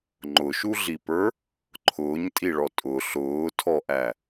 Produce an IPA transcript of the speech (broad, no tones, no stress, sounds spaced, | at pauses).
ŋ͡ǃ ʊ ʃ u ɮ i p ə˞ | ǃʰ ʊː ɲ tʼ i ɭ ɔ tʼ ʊ ɬ ʊː tʰ ɔ ʔ æ